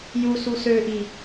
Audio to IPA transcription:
j u s u s ø ʔ i

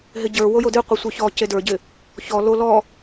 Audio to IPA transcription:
ɦ ɪ ɟ ə˞ w o j o d ɨ qʷ i sʷ ə˞ ç ɔ c e d ə˞ ɟ ɪ | ç ɔ l o l ɔ

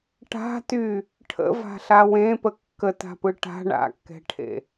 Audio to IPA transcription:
ʈ a̤ t y | ʈʰ ə̰ v a̤ ɬ a w ẽ p ə kː ə t a̤ p ɯ ʈ a̤ ɳ a̰ kː ɛ̤ ʈʰ ḛ

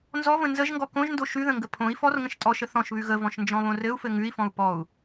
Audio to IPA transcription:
n z ɔ v ə̃ n z ə ʒ ŋ ɡ ɔ k õ ʒ n d o ʃ ʉ ð ə̃ ŋ ɡ ə pʰ õ i̯ f ɔ r ŋ ə̃ ʃ tʼ ɔ ʃ ə θ ɔ̃ ʃ β ʉ ɣ ə v ɔ̃ ʃ n d͡ʒ ɔ̃ β õ r ɘ u̯ f ɘ ŋ ʉ i̯ f ɔ̃ u̯ p ɔ u̯

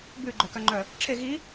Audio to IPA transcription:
b ʉ ɡ͡ǃ œ k œ ŋ͡ǃ œ | ʈ͡ʂʰ e ɣ i

